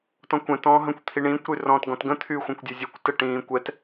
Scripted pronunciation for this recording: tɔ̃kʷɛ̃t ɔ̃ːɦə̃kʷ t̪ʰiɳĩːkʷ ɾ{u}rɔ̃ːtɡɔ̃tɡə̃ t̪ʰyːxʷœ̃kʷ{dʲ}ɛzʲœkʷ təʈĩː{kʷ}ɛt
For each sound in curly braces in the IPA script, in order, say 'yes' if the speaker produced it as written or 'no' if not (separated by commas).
no, yes, yes